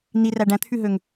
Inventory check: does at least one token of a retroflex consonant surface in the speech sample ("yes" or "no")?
yes